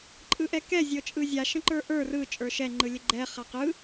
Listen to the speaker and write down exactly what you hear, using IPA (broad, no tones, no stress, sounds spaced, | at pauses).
ǃʼ ɯ ʔ ɛ k ɛ zʲ ɤ t͡ʃʼ ɯ zʲ a ʃ ə̃ ǃ ə˞ ʔ ə˞ r ɯ t͡ʃʼ ə˞ ʃ ɛ ŋ͡ǃ ɯ lʲ ə ɡ͡ǃ ɛ χ a q ɯ